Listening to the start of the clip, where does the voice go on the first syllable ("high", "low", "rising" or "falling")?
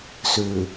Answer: low